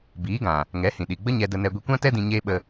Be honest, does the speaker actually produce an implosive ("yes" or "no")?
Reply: yes